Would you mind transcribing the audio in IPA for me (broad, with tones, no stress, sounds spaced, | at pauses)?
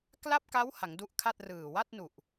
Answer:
k l a˥˩ p̚ k a˦˥ w h a˩˦ ŋ d u˦˥ ʔ kʰ a˥˩ t̚ r ɯː˨˩ w a˥˩ t̚ n u˨˩ ʔ